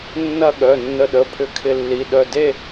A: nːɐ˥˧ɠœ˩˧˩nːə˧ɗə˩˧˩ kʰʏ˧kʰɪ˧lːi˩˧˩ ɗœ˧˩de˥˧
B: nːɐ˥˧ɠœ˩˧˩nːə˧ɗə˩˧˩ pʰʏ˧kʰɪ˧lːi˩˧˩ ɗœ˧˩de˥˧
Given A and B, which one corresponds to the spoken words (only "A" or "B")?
B